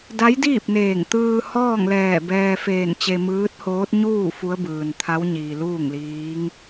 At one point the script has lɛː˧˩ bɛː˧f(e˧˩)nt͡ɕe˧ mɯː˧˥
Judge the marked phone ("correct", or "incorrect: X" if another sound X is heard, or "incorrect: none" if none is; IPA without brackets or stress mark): incorrect: eː˧˩